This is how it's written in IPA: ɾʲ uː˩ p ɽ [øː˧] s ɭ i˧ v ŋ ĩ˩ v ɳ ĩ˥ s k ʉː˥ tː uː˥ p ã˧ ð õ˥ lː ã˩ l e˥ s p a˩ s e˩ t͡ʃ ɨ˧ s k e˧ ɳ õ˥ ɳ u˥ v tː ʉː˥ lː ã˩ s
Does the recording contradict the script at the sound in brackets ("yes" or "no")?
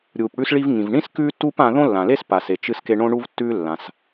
yes